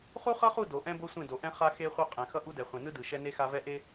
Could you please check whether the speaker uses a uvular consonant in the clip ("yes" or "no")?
yes